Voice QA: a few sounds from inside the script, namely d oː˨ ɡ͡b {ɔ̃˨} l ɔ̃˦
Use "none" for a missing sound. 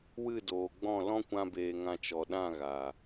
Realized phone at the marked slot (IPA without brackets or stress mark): ɔ̃˦˨